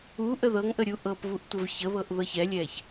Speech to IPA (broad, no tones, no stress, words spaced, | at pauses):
uʔə ðɤŋʔəɾʲu ʔɤpvuʔ tʷəvçəβɤʔ ðɤçɛlʲɛç